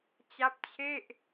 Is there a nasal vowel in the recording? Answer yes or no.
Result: no